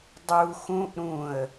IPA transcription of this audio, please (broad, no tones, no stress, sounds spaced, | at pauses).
dˤ u x ũ ʔ ɾ ũ ə̯